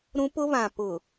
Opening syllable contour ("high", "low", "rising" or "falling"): high